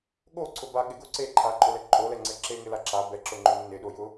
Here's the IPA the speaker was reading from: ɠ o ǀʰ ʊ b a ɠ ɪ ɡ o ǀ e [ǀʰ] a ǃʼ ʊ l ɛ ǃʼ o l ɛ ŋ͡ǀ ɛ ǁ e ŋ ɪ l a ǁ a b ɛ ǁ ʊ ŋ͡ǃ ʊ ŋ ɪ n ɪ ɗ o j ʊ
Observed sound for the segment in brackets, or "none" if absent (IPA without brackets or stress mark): ǃʰ